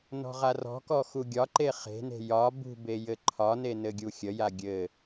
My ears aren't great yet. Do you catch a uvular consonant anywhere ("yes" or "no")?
yes